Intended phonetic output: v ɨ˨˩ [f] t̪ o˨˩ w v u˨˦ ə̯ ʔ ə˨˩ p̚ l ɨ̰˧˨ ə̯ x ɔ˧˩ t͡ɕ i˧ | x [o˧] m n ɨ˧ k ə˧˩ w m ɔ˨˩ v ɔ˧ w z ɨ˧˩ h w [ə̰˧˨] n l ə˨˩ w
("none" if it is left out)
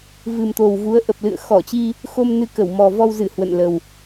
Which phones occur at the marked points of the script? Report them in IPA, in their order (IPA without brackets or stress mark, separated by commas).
m, o˧, ə̰˧˨